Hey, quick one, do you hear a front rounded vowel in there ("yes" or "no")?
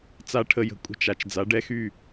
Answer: yes